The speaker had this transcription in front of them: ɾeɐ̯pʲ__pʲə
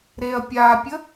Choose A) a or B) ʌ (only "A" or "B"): A